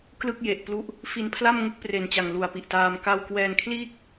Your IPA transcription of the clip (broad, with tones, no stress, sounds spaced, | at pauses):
k l ɯ˥˩ k̚ j e˨˩ ʔ p l u˦˥ ʔ | f i˧ n pʰ l a˥˩ m ŋ u˥˩ k̚ p r e˨˩ n t͡ɕ a˨˩ ŋ l u˨˩ a̯ p i˨˩ ʔ t aː˧ m k a˥˩ w k w ɛː˧ n kʰ l iː˥˩ k̚